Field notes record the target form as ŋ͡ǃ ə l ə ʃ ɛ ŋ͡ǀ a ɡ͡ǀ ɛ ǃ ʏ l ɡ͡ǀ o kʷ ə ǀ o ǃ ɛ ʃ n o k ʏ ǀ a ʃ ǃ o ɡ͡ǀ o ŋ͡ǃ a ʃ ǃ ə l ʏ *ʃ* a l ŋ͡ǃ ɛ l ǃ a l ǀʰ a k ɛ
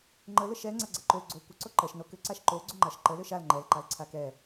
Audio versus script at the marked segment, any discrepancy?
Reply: no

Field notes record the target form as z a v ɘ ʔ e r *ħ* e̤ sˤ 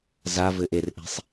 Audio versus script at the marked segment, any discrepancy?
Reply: yes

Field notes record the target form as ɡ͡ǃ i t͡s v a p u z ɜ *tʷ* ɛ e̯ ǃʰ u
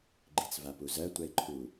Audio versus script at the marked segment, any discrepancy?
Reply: no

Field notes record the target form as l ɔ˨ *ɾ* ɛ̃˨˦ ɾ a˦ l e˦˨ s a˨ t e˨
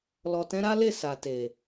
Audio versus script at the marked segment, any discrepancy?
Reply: yes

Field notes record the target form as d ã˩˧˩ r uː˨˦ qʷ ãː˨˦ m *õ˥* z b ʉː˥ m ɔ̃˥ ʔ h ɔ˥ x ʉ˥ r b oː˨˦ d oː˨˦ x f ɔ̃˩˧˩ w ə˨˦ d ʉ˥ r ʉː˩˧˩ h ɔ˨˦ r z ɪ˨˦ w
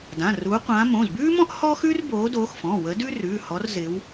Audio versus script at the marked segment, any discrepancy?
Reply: yes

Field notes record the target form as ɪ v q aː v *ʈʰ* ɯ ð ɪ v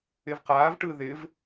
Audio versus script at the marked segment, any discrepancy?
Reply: yes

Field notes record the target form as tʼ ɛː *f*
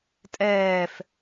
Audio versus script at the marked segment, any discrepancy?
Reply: no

